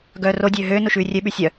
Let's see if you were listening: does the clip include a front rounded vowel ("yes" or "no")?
yes